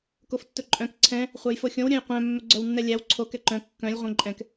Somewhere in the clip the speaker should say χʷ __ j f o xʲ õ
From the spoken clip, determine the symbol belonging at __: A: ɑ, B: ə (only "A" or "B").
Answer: A